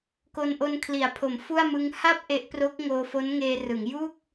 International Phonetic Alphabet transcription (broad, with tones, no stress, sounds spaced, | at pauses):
k o˧ n ʔ o˧ n kʰ l i˩˦ a̯ pʰ o˩˦ m f u˥˩ a̯ m ɯ˦˥ ŋ h a˥˩ p̚ ʔ e˦˥ ʔ p r o˦˥ k̚ ŋ oː˧ f o˦˥ n ŋ eː˧ r ɯ˩˦ ŋ j u˥˩ k̚